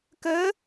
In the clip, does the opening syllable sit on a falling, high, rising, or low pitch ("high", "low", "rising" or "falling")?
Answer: rising